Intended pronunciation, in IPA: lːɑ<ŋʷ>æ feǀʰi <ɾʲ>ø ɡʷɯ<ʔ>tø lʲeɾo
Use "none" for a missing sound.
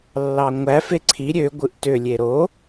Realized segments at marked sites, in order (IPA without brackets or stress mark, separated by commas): ŋʷ, ɾʲ, ʔ